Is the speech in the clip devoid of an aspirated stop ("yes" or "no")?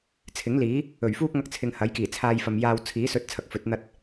no